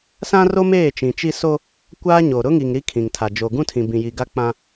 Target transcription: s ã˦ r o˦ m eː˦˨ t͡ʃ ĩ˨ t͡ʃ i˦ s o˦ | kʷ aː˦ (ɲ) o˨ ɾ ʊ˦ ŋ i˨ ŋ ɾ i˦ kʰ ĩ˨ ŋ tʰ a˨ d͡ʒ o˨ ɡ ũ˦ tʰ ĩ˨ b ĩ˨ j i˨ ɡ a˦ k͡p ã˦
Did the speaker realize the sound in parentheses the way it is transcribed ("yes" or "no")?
yes